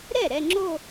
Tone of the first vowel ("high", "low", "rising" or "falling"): falling